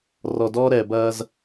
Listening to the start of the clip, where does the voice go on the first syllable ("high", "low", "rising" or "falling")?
low